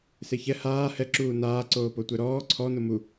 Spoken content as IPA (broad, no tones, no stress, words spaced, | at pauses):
seçɛ haː hɛǁuː naːǀoːpotʷɛ ɾɔː ǀʰɔnʊ mu